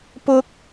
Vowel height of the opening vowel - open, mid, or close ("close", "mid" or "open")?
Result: close